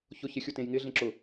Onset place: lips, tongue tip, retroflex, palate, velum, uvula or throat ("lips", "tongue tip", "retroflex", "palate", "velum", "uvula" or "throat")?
palate